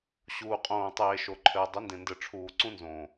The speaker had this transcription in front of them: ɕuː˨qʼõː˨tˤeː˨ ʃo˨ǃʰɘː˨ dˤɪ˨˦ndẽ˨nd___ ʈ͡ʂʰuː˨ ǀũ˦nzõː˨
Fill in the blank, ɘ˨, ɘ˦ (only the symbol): ɘ˨